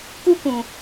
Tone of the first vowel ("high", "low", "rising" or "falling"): high